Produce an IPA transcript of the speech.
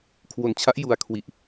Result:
kʰwo˧nt͡ɕʰa˦˥ʔju˧a̯ kʰwi˨˩ʔ

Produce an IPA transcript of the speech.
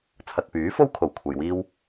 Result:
t͡sʰɐ˨t̚pyː˨˥fo˥w kʰo˨˩wkʷʰɐ˨j wiː˥w

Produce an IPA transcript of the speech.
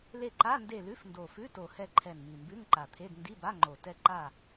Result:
le˦˨ǃa˧˥˧nde˦˨ lʉ˧˥˧fndo˨˩fʉ˧˥˧ to˨˩hɛ˦˨ǃʰɛ˨˩n mi˨˩mbʉ˧˥˧ŋǃa˨˩t̪ʰe˧˥˧d ndi˧˥˧ba˧˥˧ŋ͡ǃo˨˩ tɛ˦˨ǃa˦˨

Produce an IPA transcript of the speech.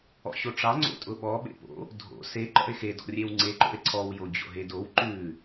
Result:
ɔ̰ɕoʈ͡ʂɑ ŋ͡ǀo̰tʼʊɓɔ ɓḛpo̰ | dʱo̰ se ǃɔ̰e̯xe dɔ̰rʲewŋ͡ǀe ǃo̰e̯ǀʰɔw jod͡ʑo̰ɦedow ǃʉ

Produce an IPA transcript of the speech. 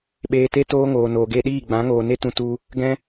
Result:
ɓeː˧te˦ toː˦ŋoː˨ noː˨ɡe˧ɗiː˦˨ ɡ͡bã˨˦ŋoː˨ ne˦tũ˧ tu˧ | ɡɛ̃˦

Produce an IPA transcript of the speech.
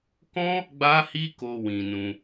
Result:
kɔ̃˦ | ɡ͡ba˦hi˦ko˧wĩ˨ nũ˧

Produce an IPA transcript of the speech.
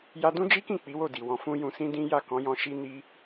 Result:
ja˧dũ˦d͡ʒi˦kĩ˦˨ k͡pi˨˦wo˦˨di˨ wɔ̃˨ fũ˧ jũ˧sĩ˦dĩ˦ ja˦˨kɔ̃˨˦jɔ̃˧ ʃi˧ni˧

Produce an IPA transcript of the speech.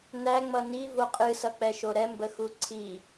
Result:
næ ŋ͡mʌni voqʼɨ sʌk͡pɛʃoɾɛ mbəxuǀʰi

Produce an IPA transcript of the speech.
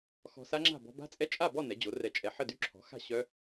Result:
xɔ̤˧sa˦˥ŋ͡ǁa̤˥˨ bɔ̤˧ba̤˦˥t͡sʼɛ˦˥ t͡ʃʼa˥˨bɔ˥˨ nɛ˩˥d͡ʑo˩˥rɛ˧t͡ʃʼɛ˧ ħə˥˨dy˦˥ ǁʰɔ̤˩˥xa̤˥˨ ɕœ˦˥

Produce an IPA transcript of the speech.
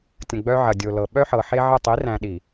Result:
tʲə̃˨ɡ͡bœ˦ʕɐ˨ dʲo˨lɤ˨ ɓœ˦ħɤ˨ħe˦ ʕə˦˨ tˤi˨˦ræ̃˨ ɗi˨

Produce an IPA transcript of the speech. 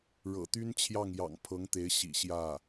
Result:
ɻɤ̰˨˩t̪y˥nt͡ɕʰjɑ˥˩ŋjɑ̰˨˩ŋ pʰɤ˧˥ŋt̪e˧˥ɪ̯ ɕḭ˨˩ ɕjä˥˩

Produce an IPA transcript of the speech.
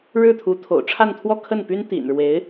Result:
ɻɻ̩˥˩t̪ʰu˧˥t̪ʰo̰˨˩ʊ̯ ʈ͡ʂʰa˥˧nt̪ʰwɔ˥˧kʰə˥˩npy˥n t̪ḭ˨˩nɻwe˧˥ɪ̯

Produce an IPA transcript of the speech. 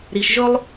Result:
ɾi˩ʃʒɵ˦lˠ

